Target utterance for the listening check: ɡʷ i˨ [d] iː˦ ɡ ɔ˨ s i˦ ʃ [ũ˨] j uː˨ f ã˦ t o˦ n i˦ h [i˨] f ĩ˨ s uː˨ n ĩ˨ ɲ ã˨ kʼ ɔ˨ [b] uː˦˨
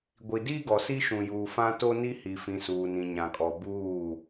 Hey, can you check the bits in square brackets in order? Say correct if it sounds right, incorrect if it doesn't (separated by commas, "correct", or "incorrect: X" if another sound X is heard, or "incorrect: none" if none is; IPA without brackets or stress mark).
correct, correct, correct, correct